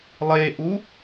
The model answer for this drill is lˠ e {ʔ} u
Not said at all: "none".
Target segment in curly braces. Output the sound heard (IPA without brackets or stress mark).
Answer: ʔ